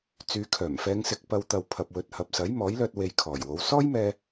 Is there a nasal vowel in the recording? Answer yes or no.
no